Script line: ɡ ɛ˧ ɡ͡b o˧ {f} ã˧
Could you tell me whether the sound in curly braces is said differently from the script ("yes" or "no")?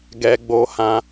yes